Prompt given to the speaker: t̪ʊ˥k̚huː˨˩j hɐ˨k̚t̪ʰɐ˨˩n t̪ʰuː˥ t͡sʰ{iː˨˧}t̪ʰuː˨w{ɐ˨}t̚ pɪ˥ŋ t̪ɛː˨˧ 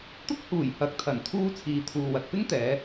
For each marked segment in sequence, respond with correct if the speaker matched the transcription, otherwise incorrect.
incorrect, correct

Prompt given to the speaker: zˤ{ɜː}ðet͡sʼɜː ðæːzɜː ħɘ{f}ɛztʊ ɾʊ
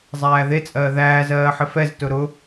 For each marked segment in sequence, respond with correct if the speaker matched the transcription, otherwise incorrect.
incorrect, correct

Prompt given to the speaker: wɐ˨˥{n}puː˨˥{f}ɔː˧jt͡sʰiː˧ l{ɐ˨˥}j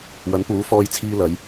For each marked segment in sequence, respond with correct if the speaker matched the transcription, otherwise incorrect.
correct, correct, correct

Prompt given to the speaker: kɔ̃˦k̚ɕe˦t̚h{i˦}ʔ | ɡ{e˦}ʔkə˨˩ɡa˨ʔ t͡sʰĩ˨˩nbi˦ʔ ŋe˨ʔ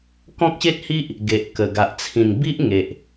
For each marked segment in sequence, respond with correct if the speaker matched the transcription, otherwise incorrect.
correct, incorrect

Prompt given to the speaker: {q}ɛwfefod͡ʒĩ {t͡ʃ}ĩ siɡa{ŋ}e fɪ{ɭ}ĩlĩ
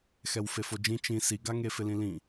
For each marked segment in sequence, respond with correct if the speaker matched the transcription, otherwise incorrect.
incorrect, correct, correct, incorrect

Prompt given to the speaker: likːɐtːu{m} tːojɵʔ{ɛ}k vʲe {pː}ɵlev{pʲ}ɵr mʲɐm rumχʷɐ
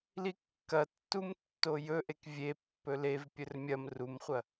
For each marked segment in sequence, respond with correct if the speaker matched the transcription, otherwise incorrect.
correct, incorrect, correct, correct

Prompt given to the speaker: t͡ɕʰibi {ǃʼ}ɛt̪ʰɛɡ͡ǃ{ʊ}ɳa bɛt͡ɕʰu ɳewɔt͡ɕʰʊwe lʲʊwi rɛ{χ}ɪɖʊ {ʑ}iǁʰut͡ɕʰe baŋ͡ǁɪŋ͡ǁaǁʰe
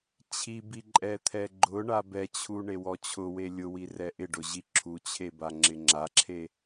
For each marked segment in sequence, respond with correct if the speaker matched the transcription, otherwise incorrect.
correct, correct, incorrect, correct

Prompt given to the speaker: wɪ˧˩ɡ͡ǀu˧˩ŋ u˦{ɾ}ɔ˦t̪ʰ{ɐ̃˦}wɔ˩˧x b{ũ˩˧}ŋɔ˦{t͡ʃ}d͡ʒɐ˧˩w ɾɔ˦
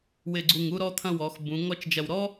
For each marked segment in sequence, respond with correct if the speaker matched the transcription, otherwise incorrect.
correct, correct, correct, correct

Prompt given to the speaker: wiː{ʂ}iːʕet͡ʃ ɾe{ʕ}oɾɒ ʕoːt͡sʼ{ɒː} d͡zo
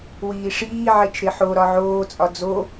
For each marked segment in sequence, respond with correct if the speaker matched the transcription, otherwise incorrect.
correct, incorrect, incorrect

